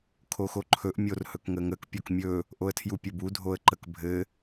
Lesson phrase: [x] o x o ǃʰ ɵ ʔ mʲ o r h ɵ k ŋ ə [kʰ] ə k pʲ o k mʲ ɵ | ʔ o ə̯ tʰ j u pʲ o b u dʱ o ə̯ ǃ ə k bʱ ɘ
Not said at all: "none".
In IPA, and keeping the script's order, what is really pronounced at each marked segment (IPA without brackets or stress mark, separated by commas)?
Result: kʰ, ŋ